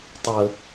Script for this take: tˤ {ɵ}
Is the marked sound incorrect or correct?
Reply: incorrect